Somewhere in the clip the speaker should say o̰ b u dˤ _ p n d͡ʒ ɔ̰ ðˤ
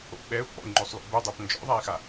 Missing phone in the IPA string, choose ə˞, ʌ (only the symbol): ə˞